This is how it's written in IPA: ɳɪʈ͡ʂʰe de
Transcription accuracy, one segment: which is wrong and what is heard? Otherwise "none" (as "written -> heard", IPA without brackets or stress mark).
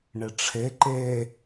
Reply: d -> ǃ